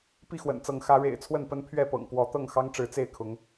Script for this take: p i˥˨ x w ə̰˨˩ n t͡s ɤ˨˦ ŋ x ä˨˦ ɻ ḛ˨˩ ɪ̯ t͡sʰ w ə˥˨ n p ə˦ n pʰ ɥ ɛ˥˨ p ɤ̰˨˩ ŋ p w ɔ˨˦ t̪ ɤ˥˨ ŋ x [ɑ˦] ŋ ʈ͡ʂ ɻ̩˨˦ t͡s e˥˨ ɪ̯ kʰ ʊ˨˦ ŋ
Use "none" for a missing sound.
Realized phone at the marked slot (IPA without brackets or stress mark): ɑ˦